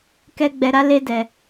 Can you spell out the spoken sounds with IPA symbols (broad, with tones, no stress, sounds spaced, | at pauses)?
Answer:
k ɛ˧ ɡ͡b ɛ˧ ɾ a˦ l e˦ d ɛ˧